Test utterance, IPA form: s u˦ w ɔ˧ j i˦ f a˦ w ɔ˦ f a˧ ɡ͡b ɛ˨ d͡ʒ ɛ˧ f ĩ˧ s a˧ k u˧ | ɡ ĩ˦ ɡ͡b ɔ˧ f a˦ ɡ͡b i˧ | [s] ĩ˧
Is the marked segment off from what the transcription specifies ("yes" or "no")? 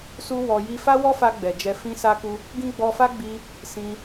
no